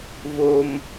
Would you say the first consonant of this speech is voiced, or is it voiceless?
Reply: voiced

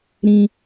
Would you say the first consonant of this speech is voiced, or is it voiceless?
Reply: voiced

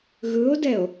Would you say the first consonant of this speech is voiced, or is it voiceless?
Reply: voiced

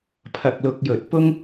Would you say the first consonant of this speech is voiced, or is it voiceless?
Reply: voiceless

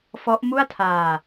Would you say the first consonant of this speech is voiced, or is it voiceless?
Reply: voiceless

